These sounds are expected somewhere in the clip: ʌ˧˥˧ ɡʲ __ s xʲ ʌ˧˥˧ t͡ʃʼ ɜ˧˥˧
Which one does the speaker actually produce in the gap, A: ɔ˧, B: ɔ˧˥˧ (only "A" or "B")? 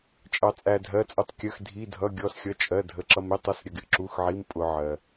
B